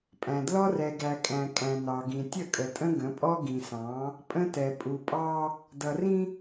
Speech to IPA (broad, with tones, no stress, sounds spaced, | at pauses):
pʼ æ̃˨ d l ɔ˦ r ɛ˨ ɡ æ˨ kʼ æ̃˨ kʼ æ̃˨ n ɑ˨ ɡ ĩ˨ tʲ ə˦˨ kʼ ə˨ tʼ ə̃˦ ɡ ə̃˨˦ pʼ ɔ˦ ɡ ĩ˨ s ɑ̃˨˦ | pʼ ə̃˦ t ɛ˨ pʼ u˨ pʼ ɑ˦ | d ʌ˨ r ĩ˦